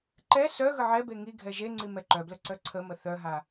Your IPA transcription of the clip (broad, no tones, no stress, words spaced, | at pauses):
ǃɛ sœ ɣəʕɛbe ŋi ɡʱɛʒeŋ͡ǀi mɛǃœblə ǀœǀʰəmə θœɦa